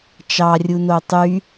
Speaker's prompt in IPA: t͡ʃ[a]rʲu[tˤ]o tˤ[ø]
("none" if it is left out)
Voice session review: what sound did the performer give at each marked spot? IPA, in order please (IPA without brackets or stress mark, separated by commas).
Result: ɑ, n, y